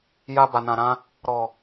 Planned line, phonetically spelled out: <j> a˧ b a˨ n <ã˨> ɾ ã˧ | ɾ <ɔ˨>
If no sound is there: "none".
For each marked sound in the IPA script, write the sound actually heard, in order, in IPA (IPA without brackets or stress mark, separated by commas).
j, ã˨, ɔ˨